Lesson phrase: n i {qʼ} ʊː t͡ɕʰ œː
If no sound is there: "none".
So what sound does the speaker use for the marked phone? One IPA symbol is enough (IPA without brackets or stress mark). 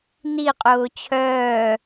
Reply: qʼ